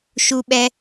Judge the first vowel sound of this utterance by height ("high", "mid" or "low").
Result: high